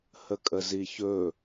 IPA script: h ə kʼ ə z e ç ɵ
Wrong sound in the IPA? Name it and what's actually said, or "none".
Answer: e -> i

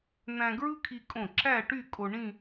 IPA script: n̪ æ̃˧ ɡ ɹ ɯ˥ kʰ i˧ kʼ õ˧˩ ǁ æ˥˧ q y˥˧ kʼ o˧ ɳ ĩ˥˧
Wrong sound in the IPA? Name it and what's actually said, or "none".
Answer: q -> ʈ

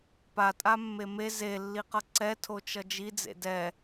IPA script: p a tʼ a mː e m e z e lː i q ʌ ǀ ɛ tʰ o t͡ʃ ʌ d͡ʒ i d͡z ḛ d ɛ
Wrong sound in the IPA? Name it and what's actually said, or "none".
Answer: none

